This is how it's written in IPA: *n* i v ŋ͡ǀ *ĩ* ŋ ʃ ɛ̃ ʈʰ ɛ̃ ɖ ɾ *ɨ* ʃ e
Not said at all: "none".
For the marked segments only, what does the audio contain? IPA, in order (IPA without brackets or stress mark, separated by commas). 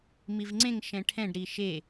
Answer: m, ẽ, i